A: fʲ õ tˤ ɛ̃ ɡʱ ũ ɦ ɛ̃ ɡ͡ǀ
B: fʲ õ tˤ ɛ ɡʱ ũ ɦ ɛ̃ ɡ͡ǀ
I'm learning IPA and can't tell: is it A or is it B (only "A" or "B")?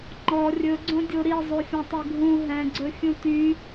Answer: B